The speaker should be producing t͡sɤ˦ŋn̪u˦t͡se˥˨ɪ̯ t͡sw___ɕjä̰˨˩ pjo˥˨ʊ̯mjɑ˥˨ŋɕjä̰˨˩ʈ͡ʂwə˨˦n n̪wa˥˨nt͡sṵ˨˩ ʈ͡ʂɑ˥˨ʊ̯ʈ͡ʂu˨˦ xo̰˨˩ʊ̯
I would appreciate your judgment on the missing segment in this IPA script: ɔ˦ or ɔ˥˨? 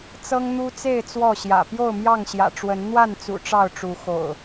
ɔ˥˨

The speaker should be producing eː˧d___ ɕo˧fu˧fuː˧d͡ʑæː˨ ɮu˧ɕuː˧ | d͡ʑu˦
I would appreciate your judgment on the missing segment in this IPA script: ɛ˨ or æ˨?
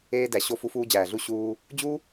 æ˨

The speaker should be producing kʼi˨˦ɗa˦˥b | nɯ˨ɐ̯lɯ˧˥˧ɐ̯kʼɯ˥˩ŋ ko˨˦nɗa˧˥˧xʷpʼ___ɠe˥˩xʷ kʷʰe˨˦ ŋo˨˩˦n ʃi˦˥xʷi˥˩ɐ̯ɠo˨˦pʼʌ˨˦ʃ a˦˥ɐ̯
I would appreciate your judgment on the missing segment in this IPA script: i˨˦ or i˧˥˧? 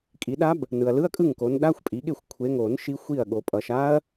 i˨˦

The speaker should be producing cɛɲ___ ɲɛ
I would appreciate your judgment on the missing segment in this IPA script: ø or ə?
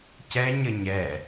ə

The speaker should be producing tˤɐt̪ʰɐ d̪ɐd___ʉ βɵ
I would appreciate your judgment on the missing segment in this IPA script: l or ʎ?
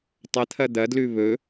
l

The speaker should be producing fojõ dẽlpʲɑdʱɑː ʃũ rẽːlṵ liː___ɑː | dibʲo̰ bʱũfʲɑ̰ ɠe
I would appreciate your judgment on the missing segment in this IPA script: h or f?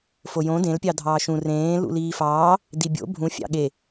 f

